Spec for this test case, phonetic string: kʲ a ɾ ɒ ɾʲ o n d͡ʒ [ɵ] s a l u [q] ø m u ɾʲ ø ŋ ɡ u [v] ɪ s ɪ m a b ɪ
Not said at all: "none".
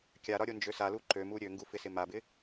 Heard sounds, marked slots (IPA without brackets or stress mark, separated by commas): ø, ǃ, f